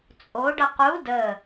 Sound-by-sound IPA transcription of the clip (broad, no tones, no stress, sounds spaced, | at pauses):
t͡sʼ o ɖ ʌ q u d ə